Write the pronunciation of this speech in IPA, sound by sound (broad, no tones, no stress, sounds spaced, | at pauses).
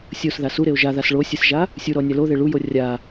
sʲ o s ð a s u ɾ e o̯ ʒ a ð a s ɭ o sʲ ɨ s ʒ a | sʲ u ɾ ɔ nʲ a l o ð e ɭ u j o rʲ a